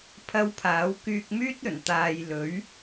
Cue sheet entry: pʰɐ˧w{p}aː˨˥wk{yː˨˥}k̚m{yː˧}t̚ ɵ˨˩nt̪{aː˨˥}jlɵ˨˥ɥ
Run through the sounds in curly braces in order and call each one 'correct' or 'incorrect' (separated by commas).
incorrect, incorrect, incorrect, incorrect